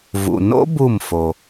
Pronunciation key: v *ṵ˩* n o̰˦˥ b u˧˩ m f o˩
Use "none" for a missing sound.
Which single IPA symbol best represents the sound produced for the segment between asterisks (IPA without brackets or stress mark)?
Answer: ṵ˩